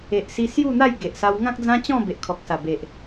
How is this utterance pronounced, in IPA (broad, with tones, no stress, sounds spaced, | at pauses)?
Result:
e˨ ʔ s i˧ s j u˥˧ n̪ a˥˧ j ɡ e˨ ʔ s a˧ w ŋ ã˦ k̚ d͡z ã˦ t͡ɕ ɔ̃˥˧ b e˨ ʔ kʰ ɔ˨ k̚ s a˨˩ b e˨ ʔ